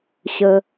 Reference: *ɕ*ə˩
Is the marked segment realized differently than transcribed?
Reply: no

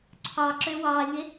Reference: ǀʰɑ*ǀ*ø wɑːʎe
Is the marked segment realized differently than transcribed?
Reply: yes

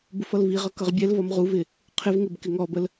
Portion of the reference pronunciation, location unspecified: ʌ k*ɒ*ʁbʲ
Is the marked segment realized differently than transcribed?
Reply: yes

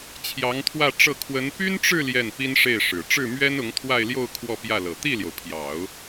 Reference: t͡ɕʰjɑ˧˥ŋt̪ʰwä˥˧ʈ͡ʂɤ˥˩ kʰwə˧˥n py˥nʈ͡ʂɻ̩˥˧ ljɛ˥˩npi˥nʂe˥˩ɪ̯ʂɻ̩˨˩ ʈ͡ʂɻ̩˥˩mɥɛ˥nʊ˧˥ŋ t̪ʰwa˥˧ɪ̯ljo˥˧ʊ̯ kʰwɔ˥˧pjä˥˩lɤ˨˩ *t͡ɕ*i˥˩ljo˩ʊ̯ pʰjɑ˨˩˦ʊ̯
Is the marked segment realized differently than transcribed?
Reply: yes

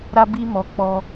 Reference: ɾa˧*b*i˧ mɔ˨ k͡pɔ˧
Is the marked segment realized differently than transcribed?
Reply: no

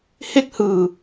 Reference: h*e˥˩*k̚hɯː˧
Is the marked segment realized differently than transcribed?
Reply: no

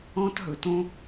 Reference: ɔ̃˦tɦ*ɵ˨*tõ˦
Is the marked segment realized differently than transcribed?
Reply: no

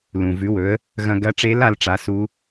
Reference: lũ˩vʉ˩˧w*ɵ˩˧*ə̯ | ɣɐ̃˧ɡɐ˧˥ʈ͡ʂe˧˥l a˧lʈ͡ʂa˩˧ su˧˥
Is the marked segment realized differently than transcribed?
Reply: no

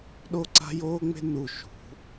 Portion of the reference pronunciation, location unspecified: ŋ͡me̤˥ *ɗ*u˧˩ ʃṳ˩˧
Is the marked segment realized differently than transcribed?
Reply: yes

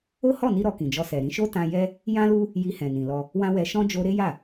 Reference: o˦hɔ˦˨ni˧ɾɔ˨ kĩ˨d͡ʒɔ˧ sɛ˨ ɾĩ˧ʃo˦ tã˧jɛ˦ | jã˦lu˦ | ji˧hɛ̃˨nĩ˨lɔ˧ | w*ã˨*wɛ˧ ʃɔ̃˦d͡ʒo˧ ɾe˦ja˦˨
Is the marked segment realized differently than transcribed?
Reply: yes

